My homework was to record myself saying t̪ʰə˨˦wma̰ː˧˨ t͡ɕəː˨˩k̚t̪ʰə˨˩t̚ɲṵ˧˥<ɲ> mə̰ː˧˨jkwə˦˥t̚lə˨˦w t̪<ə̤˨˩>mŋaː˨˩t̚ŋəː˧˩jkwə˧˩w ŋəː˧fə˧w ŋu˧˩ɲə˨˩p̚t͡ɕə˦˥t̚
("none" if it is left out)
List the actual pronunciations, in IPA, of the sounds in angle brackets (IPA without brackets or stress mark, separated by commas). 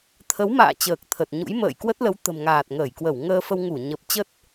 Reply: j, ə̤˨˩